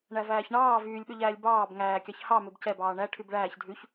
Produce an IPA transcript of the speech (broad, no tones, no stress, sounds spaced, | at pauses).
ɳ æ v æː ç ɳ ɑː v yː lʲ ɓ ø ʎ æː lʲ b ɑː b ŋ æː kʲ ɑ ç h ɑ m ø b c ɛ b ɑː ɳ æ ʈʰ y b ɭ æː ç dʱ ʉ ç